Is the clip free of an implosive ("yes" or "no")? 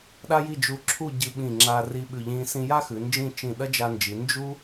no